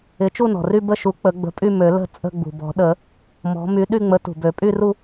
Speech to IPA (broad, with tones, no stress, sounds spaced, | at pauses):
ɪ˨˥ t͡ʃ u˥˧ n ɔ̤˩ r y˥˧ b ə˥˧ ʃ u˨˥ k͡p ə˨˩˦ ɡ͡b ə̤˨˥ pʼ y˥˧ m ø˨˩˦ l ə̤˥˧ t͡sʼ ə̤˥˧ ɡ͡b ṳ˩ b ɔ̤˨˩˦ ɗ ə˨˩˦ | m ɔ̤˨˥ m y˨˥ ɗ y˥˧ ŋ͡m ə˨˥ t ṳ˩ b ø˨˩˦ pʼ y˥˧ r u˥˧